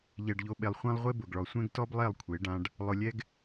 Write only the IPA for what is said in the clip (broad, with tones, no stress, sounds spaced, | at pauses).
ʎ ɛ˨ ɖ ʎ o˨ ɓ e˨ lˠ χʷ ã˧ lˠ ʁʷ e˧ b ʊ˨ ɡ ɭ ɔ˨ sʷ ɛ̃˦ ɡ t ɔ˦ b lˠ ɛ˦˨ lˠ kʷʰ e˨˦ ɖ ã˧ ɖ | lˠ ʊ˧ lʲ ɛ˦ ɡ